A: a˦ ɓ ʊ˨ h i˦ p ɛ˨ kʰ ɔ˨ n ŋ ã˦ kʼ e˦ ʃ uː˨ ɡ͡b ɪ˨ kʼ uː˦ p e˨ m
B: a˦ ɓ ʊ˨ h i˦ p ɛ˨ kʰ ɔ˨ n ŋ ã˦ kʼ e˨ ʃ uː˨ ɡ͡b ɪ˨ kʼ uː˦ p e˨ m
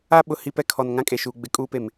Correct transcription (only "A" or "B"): B